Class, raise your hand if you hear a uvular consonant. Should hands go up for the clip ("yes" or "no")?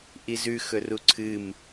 no